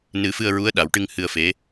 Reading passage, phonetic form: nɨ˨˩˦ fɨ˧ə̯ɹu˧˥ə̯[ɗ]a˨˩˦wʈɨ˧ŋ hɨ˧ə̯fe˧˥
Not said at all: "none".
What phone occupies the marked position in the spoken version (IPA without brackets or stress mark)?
ɗ